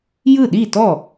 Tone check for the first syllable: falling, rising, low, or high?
falling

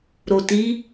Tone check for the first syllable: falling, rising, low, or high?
low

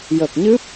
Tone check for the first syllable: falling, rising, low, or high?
low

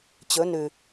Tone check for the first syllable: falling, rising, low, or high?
rising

